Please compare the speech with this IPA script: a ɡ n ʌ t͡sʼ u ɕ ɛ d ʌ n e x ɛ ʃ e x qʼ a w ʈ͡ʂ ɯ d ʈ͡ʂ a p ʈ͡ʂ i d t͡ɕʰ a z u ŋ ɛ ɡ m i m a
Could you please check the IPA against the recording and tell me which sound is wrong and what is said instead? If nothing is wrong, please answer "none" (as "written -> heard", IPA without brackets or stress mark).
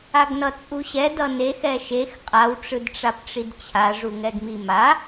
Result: z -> ʐ